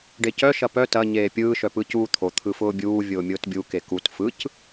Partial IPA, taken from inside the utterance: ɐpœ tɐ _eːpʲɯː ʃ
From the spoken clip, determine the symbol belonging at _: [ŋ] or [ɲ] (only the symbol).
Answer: ɲ